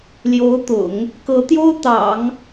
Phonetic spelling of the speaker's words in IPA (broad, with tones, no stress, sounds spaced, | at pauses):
l j o˧˥ ʊ̯ t̪ ʊ̰˨˩˦ ŋ | k ɤ˧˥ t̪ j o˥ ʊ̯ t̪ ɑ̰˨˩˦ ŋ